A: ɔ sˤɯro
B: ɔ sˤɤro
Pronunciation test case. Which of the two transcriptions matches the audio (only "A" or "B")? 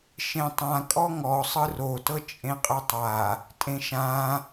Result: A